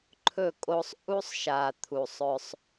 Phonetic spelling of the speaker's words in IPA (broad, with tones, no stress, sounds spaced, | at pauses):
ǃʰ ɵ˦˨ kʼ o˦ sˤ ʔ u˦ sˤ ʃ a˨ t̪ʰ u˨ sˤ ɵ˦ sˤ